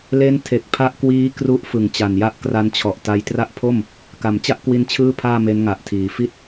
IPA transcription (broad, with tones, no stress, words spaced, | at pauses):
le˦˥ntʰe˨˩k̚ pʰa˦˥ʔkwiː˦˥ kru˦˥ʔ fɯ˨˩ŋt͡ɕa˨˩nja˥˩ʔ kra˧nt͡ɕʰɔ˨˩ʔta˦˥j tra˦˥ʔpʰo˥˩m | ka˩˦mt͡ɕa˥˩ʔ kwi˧n t͡ɕʰɯː˥˩pʰaː˥˩ me˦˥nŋa˨˩ʔtʰiː˩˦ fi˦˥t̚